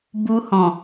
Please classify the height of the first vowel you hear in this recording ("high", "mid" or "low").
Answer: high